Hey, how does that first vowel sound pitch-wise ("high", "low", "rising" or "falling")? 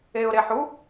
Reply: low